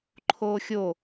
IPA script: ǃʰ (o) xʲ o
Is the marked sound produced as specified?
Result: no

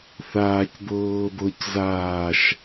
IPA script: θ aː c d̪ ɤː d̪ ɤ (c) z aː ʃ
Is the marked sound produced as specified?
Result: yes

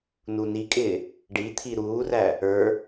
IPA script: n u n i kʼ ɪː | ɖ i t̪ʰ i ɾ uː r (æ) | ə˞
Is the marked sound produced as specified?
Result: yes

